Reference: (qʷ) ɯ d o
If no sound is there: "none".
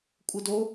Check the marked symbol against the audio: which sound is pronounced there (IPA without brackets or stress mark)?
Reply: kʷʼ